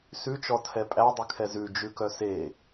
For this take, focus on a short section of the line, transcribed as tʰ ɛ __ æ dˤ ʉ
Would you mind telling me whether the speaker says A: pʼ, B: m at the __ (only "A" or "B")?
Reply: A